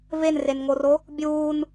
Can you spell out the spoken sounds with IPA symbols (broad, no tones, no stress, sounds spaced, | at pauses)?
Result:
v e n r e n ŋ o r o | bʲ uː n